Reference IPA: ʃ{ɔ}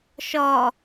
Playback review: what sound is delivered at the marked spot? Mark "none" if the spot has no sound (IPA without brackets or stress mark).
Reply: ɔ